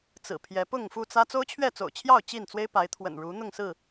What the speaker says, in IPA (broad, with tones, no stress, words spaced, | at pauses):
t͡sɹ̩˨˩pʰjɛ˨˦pʊ˥˨ŋ fu˥˨t͡sä˦ t͡so˦ʊ̯t͡ɕʰɥɛ˥˨t͡so̰˨˩ʊ̯t͡ɕʰjɑ˥˨ʊ̯ t͡ɕi˥˨nt͡swe˦ɪ̯pa˨˦ɪ̯ t̪ʰwə̰˨˩nɻu˨˦ n̪ʊ˥˨ŋsɹ̩˥˨